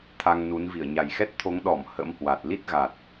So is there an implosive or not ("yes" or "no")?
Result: yes